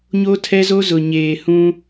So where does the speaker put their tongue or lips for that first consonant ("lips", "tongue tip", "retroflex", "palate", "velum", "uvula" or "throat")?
palate